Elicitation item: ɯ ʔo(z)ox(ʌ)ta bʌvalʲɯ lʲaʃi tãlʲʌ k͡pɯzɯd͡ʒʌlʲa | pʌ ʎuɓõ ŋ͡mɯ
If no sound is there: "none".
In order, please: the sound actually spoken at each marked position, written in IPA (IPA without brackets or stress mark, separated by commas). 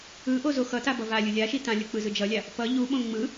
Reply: z, ʌ